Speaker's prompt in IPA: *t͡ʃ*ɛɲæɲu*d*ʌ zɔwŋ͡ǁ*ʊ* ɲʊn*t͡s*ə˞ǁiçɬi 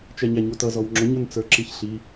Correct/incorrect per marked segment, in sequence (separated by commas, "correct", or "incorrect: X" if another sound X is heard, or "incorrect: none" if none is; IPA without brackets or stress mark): correct, incorrect: t, correct, correct